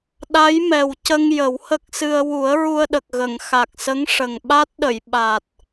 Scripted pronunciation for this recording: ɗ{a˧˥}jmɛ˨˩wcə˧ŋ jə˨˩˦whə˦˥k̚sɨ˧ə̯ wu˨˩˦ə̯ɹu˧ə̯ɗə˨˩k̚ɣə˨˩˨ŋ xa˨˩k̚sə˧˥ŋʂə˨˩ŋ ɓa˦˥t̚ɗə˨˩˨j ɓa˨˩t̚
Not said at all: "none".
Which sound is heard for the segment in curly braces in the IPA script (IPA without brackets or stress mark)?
a˧˥